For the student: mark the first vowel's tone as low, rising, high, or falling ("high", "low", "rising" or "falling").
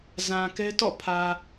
low